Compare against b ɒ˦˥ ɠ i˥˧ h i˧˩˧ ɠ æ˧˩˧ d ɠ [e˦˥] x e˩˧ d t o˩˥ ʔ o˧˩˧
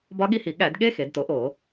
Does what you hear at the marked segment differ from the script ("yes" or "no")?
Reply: no